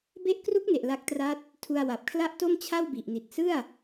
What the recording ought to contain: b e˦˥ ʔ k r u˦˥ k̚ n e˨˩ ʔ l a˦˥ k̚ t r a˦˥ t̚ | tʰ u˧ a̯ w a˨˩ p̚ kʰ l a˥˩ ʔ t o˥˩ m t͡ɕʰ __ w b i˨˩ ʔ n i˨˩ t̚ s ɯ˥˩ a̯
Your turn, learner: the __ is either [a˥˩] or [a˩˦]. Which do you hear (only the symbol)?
a˥˩